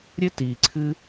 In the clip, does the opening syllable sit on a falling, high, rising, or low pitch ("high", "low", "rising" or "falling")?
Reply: high